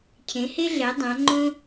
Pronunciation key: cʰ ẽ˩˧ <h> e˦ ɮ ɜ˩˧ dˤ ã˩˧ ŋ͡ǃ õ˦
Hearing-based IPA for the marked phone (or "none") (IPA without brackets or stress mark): h